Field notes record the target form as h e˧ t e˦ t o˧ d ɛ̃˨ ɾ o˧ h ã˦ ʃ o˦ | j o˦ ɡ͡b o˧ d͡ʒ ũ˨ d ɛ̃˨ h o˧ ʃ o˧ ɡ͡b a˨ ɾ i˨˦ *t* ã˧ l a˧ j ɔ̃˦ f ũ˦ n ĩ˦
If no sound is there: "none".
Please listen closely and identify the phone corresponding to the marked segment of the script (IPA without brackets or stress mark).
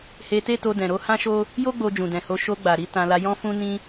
t